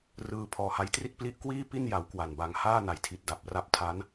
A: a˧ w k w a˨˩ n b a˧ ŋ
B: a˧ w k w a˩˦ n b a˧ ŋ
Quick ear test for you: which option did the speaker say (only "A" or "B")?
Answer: A